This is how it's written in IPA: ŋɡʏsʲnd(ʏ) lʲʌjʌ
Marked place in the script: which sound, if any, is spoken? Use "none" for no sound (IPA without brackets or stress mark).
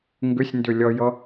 ʏ